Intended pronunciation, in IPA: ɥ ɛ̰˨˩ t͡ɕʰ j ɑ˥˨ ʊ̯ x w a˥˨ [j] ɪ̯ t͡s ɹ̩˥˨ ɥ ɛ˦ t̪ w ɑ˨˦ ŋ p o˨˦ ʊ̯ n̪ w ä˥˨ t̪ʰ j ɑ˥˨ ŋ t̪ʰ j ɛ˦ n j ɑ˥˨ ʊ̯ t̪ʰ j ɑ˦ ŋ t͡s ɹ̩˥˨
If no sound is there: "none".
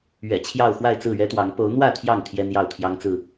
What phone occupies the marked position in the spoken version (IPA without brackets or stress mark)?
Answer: none